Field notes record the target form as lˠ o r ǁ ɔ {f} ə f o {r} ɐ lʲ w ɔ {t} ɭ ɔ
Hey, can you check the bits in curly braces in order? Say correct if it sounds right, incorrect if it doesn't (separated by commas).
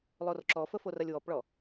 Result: correct, correct, incorrect